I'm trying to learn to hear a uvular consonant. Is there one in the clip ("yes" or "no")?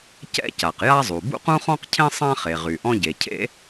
yes